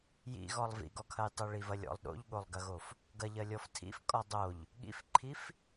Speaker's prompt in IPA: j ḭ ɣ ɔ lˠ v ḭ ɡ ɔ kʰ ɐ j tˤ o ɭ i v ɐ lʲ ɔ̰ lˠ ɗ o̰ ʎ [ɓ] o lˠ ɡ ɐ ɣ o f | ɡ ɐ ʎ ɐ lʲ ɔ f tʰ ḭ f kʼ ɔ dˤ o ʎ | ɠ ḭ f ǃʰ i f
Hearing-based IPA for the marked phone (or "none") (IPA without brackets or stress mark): ɠ